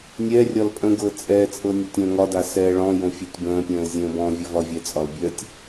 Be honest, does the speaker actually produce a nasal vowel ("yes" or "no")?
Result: yes